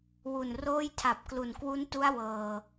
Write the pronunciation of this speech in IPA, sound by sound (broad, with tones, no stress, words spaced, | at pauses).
wu˨˩n roː˥˩jtʰa˨˩p̚klu˨˩n kwu˦˥ntu˦˥a̯ wɤː˨˩